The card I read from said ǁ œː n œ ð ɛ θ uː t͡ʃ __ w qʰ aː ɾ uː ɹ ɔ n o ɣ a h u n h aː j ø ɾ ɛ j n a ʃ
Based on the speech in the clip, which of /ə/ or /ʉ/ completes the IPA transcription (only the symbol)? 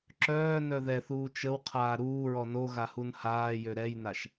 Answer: ə